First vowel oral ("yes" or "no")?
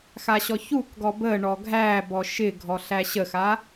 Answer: yes